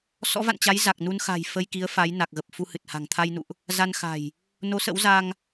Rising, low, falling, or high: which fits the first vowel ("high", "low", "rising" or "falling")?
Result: rising